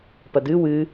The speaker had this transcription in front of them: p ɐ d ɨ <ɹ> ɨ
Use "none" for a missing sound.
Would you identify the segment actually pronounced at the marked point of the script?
w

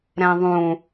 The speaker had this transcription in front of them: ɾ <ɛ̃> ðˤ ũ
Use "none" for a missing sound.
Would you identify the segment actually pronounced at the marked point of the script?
ɛ̃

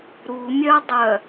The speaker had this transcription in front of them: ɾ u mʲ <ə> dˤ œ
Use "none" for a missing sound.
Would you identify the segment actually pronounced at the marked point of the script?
œ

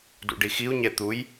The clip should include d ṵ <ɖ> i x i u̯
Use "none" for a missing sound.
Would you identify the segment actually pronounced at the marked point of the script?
ɖ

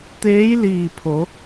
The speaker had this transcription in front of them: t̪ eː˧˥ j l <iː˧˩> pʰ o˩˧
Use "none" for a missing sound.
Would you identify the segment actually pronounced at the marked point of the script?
iː˧˩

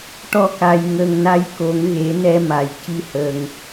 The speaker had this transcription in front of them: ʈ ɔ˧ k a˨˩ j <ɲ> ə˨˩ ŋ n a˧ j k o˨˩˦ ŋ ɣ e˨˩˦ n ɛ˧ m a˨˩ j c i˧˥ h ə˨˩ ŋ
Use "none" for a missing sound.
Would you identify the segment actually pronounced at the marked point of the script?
ŋ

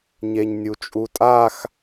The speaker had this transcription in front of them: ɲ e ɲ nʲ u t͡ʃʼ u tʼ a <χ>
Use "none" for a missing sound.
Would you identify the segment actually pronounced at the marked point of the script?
x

